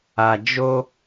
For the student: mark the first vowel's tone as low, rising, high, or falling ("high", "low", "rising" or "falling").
high